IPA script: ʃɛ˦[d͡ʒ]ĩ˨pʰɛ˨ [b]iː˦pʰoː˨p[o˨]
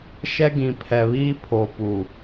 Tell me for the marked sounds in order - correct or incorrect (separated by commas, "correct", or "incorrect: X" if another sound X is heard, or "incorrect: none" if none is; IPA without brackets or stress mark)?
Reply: incorrect: ɡ, incorrect: β, incorrect: u˨